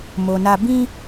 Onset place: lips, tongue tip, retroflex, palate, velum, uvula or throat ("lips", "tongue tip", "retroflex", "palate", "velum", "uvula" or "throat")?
lips